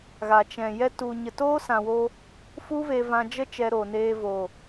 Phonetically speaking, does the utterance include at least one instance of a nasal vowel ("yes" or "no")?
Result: yes